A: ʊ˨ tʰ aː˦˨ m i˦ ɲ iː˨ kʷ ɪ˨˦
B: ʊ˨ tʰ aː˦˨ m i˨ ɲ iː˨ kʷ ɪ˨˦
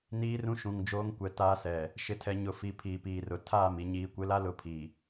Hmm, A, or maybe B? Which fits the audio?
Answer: B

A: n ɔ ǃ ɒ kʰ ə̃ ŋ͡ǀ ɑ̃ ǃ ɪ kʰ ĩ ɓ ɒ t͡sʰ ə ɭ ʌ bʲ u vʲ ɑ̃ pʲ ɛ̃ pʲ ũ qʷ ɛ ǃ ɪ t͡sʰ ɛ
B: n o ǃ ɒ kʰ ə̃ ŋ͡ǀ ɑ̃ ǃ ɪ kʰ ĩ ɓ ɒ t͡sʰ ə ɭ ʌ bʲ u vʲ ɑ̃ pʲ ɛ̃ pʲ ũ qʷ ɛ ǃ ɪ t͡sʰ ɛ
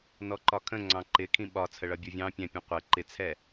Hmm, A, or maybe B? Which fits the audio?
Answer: A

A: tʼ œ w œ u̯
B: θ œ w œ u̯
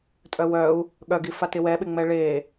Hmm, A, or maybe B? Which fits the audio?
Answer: A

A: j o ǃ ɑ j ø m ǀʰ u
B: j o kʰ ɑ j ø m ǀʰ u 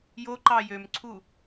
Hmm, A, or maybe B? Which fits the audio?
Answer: A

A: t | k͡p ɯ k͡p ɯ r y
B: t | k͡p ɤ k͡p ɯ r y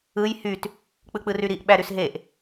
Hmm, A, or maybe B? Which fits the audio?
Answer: A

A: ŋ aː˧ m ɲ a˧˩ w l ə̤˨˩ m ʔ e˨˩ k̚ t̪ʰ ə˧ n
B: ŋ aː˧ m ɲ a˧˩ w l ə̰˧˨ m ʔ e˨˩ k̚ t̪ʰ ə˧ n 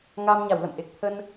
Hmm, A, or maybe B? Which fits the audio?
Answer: B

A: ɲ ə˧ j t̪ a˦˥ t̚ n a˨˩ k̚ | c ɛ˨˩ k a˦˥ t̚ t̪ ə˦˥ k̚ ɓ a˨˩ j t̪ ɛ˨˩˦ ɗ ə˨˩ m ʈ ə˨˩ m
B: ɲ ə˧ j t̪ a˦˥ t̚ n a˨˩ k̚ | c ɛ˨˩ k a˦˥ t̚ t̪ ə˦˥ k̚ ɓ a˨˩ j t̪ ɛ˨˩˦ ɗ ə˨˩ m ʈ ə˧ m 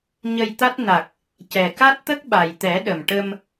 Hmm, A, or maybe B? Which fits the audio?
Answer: B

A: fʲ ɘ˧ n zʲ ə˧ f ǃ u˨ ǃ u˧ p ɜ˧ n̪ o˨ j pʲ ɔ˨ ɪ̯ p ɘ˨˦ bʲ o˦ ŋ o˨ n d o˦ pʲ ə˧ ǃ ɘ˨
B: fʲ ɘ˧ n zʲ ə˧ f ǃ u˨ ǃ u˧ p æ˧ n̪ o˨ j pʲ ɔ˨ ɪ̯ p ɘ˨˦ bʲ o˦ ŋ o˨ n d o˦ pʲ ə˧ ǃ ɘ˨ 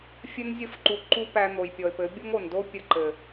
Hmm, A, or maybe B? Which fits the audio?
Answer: B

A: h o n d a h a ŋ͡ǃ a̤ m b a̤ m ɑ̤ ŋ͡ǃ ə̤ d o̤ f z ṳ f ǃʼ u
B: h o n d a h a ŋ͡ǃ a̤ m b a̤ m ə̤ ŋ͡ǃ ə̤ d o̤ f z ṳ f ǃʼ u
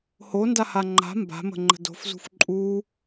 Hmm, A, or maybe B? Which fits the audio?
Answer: B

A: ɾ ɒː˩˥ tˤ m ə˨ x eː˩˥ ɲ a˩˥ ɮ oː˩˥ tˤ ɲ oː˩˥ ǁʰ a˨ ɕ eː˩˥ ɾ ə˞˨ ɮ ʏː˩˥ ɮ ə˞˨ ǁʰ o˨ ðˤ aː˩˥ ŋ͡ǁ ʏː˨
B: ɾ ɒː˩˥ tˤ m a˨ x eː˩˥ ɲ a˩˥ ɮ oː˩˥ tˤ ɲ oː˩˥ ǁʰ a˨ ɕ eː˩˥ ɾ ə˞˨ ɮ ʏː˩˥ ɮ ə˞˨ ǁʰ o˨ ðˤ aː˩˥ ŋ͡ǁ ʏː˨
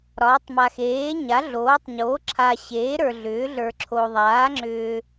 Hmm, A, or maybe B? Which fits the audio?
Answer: B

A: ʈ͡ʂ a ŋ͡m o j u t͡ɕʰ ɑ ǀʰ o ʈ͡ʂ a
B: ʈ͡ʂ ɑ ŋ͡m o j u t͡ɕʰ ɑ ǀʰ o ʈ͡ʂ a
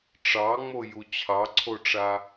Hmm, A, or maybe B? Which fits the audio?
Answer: B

